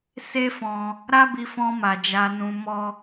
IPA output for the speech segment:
s e˦ f ɔ̃˧ | ɾ a˦ b i˧ f ɔ̃˧ m a˨ d͡ʒ a˧ n ũ˧ m ɔ˦

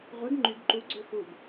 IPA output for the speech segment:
ʁʷ e ɡ ŋ͡ǃ y ɡ ǃ u ɡ͡ǀ ø x u ɡ

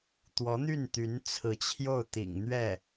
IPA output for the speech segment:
t̪ w ɔ˧˥ n̪ y˥˩ n t̪ y˧˥ n t͡sʰ ɹ̩˧˥ t͡ɕʰ j o˥˩ ʊ̯ t̪ ḭ˨˩ ŋ n̪ ɥ ɛ˥˩

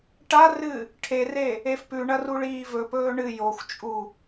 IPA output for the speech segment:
ʈ a r ɨ | ʈʰ e r e | e f p ʉ ɳ ɐ r u ɭ iː v ɵ p ɵː ɳ ɨ j o xʷ t͡ʃʼ u

